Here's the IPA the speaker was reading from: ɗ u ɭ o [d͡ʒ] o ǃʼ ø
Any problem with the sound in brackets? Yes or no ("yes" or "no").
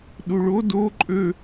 yes